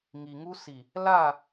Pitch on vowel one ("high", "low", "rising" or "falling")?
low